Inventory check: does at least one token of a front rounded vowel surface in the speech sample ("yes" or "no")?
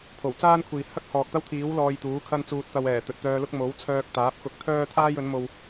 yes